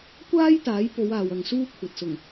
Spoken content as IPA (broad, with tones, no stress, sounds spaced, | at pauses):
kʷ aː˥ j t̪ aː˨˥ j p o˨˧ w aː˨ w ɐ˨ ŋ s uː˥ kʷʰ ɐ˨ t̚ s ʊ˨˩ ŋ